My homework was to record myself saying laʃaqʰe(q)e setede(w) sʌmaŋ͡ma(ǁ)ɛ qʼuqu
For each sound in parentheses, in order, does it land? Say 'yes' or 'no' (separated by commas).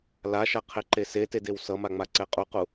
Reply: no, yes, no